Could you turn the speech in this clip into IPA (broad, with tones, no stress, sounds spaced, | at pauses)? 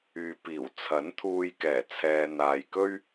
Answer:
yː˨ p iː˨˩ w t͡sʰ ɐ˨˥ n t̪ʰ uː˧ j k ɛː˨˩ t͡sʰ ɛː˨ n̪ aː˨ j k ɵ˥ ɥ